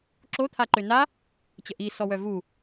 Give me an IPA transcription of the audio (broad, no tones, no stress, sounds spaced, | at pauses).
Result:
ǁ o t̪ʰ a ǃ ø n a | t͡ɕ ə ʔ i s ɔ w œ v u